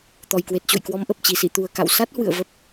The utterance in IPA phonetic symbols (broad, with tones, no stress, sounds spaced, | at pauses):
t̪ ɔ˨˩ j k w e˨˩ t̚ t͡ɕ o̰˧˨ j k w ɔ˨˦ m ʔ ə˨˩ p̚ t͡ɕ i˧˩ s ḭ˧˨ t̪ u˨˩ ə̯ k a̰˧˨ w s a˦˥ t̚ h w ɨ̰˧˨ ə̯ v ə˨˩ p̚